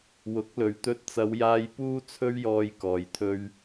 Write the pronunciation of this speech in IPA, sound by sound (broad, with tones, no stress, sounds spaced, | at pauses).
w ʊ˨˥ k̚ l ɵ˨˩ ɥ t̪ ɵ˧ t̚ t͡s ɐ˨˧ w j aː˧ j p uː˥ t͡sʰ ɵ˥ ɥ j ɔː˧ j k ɔː˨ j t̪ʰ ɵ˥ ɥ